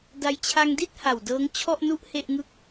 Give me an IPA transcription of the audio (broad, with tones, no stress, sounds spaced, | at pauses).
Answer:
d a˧ j t͡ɕʰ a˧ ŋ d i˥˩ t̚ h a˨˩ w d ɤː˦˥ ŋ t͡ɕʰ ɔ˥˩ ʔ n u˥˩ ʔ h e˥˩ ʔ ŋ ɯ˥˩ k̚